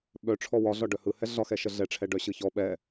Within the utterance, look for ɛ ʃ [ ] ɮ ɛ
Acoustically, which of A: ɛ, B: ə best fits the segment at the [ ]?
B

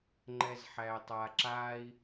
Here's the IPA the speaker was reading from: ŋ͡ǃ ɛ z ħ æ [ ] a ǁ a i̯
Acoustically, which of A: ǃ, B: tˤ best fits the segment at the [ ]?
B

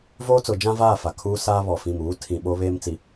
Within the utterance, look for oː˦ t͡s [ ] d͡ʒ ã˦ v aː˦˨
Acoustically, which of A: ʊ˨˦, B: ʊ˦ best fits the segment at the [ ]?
A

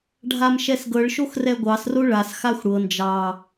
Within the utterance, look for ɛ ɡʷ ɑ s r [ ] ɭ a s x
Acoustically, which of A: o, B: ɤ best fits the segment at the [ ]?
A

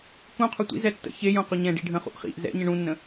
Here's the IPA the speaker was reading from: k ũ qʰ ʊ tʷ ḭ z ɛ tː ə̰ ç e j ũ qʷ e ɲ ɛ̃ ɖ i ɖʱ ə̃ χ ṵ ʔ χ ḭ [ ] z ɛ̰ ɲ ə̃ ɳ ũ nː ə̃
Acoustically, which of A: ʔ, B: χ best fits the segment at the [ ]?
A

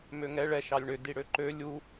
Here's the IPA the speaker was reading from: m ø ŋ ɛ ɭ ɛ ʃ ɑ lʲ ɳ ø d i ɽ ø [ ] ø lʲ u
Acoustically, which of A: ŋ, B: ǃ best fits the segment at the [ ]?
B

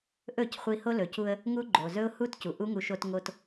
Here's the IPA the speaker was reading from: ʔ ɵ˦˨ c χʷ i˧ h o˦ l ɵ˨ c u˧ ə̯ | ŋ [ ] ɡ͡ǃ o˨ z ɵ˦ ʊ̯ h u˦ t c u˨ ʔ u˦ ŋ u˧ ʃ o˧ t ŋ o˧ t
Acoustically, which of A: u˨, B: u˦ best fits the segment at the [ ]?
B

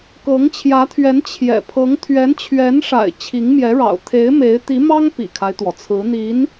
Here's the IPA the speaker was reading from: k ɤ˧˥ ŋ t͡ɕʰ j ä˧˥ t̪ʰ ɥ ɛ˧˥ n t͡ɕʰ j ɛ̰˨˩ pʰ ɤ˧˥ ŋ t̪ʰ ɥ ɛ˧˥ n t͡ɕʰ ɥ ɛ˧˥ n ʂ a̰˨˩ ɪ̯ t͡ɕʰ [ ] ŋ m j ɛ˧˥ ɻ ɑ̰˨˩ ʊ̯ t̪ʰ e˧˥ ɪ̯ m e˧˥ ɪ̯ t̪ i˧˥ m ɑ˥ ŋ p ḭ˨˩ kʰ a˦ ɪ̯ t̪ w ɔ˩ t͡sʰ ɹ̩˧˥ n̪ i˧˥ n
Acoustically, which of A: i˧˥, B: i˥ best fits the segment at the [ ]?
A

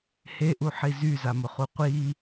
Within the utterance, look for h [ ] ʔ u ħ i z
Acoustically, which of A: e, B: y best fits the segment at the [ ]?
A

